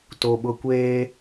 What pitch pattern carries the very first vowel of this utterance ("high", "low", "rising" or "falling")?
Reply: high